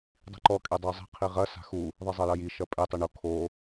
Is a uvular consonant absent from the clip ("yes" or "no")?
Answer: no